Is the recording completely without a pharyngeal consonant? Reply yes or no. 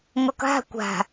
yes